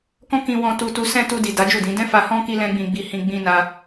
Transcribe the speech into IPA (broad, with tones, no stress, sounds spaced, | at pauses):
k ɔ̃˦ k ĩ˧ w ɔ̃˧ t u˧ t u˧ s ɛ̃˧ t u˧ d i˨ d a˨˦ d͡ʒ u˦˨ d ĩ˨˦ d ɛ̃˦ f a˧ h ɔ̃˦ k i˦ l ɛ̃˦ ɡ͡b ĩ˧ ɡ͡b i˧ h ĩ˧ ɡ͡b ĩ˦ n a˦